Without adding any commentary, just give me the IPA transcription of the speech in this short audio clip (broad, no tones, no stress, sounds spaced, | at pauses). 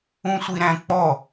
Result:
ũ sʷ i ɾ æ̃ k͡p ɔ